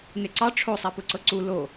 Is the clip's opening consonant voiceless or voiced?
voiced